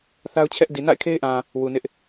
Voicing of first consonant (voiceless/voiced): voiceless